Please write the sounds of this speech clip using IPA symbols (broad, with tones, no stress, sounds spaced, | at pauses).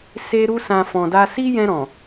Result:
s e˧ ɾ u˧ s ã˨ f ɔ̃˨ d a˧ s i˦ j ɛ̃˧ ɾ ɔ̃˨